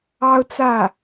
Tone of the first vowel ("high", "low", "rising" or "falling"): high